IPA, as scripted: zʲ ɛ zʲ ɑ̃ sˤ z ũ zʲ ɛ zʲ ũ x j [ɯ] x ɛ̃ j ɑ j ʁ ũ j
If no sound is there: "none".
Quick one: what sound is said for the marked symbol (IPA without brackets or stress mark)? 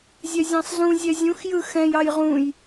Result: ɯ